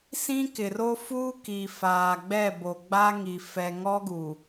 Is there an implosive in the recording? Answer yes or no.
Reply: no